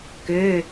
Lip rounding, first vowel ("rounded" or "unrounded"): rounded